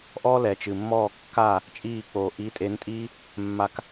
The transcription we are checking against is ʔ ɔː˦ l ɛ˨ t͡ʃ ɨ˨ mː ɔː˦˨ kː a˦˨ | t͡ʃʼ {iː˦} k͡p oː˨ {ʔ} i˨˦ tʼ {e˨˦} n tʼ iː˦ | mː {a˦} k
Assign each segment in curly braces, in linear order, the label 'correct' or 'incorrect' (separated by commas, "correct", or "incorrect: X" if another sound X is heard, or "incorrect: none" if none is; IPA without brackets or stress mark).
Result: incorrect: iː˦˨, correct, correct, incorrect: a˧